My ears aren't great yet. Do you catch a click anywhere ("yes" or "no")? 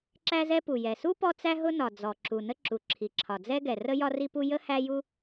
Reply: yes